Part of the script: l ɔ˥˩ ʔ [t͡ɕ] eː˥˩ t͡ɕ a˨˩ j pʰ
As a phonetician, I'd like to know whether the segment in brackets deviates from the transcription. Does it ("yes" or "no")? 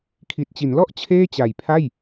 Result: yes